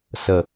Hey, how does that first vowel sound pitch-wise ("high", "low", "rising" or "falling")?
low